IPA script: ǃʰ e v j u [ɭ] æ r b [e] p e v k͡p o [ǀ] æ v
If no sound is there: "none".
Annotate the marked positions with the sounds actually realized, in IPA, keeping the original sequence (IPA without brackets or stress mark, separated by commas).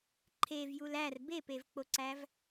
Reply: l, e, ǀ